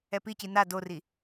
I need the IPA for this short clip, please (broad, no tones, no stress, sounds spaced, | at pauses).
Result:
ɛ p i c i n a d o r i